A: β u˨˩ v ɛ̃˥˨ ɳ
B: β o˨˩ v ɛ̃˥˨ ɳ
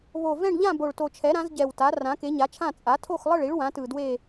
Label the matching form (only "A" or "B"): B